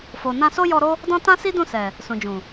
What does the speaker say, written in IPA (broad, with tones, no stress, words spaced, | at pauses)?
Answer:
fo˨ nã˧so˦ jɔ˧ɾo˦ | dɔ̃˦ tã˦si˦dũ˦˨sɛ˨ | sũ˨d͡ʒũ˨